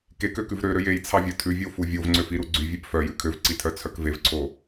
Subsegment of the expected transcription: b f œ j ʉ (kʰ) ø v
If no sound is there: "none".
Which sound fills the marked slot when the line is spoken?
kʰ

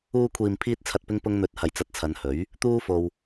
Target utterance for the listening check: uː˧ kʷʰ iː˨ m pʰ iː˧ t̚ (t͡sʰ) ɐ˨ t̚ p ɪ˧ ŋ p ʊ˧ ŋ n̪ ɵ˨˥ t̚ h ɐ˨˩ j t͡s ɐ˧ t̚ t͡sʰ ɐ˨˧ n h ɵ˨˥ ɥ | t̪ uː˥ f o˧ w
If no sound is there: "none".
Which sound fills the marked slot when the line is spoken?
t͡sʰ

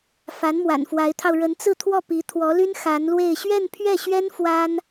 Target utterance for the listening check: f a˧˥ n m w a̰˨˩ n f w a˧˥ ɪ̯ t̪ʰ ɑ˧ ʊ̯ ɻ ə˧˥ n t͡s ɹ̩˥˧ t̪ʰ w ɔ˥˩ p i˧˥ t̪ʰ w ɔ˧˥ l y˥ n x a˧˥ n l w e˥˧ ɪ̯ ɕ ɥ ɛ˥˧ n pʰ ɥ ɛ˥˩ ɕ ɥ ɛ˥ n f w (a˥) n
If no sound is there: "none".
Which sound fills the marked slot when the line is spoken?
a˥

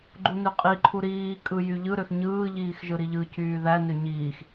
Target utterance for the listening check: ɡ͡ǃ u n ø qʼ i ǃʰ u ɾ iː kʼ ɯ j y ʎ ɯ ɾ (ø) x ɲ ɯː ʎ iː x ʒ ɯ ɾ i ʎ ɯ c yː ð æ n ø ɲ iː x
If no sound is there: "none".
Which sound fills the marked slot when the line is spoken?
ø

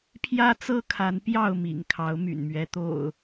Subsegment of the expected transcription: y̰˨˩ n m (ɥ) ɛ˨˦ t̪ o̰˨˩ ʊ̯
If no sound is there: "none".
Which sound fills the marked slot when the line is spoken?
ɥ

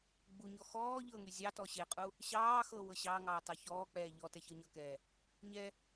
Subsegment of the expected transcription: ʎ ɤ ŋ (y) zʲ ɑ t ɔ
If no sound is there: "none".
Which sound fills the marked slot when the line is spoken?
y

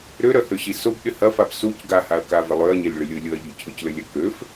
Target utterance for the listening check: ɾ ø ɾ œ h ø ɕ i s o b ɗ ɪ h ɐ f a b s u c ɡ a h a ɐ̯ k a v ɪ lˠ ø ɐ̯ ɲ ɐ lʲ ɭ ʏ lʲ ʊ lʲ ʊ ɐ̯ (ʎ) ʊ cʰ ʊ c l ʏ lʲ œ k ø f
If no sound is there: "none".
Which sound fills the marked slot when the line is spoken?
ʎ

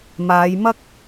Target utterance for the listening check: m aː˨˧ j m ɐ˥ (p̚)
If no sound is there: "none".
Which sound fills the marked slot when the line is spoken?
k̚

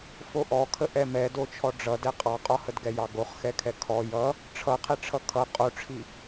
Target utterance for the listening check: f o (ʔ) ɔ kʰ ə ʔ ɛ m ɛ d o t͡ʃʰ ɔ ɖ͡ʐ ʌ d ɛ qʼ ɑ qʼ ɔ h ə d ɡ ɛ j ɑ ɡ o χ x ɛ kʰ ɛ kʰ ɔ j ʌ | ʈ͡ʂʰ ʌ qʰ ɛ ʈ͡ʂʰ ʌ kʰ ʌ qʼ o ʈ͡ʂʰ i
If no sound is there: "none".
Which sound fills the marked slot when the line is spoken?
ʔ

